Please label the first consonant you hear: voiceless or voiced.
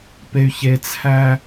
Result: voiceless